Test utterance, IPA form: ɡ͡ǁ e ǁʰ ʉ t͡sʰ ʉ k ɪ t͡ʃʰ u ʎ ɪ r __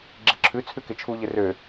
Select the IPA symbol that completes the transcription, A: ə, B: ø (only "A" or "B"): B